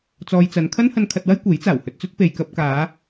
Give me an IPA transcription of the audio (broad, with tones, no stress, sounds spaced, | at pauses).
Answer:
t͡s ɔː˧ j t͡s ɐ˨˧ n kʰ ɐ˥ n h ɐ˧ n kʰ ɐ˧ t̚ w ɐ˥ j kʷ e˨˥ j t͡s aː˨˩ w h ɵ˧ t̚ t͡s ɵ˥ t̚ p e˨ j k ɐ˧ p̚ k aː˨˧